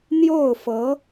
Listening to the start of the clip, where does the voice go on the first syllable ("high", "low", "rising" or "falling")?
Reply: falling